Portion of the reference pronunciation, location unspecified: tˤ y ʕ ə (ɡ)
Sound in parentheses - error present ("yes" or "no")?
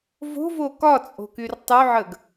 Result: no